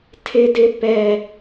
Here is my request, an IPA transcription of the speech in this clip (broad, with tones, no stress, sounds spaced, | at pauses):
tʰ ɪ˦ d ɪ˦ p ɛ˦